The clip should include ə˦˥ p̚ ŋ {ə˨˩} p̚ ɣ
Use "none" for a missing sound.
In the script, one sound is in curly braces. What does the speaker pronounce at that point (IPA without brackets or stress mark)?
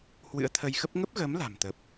ə˦˥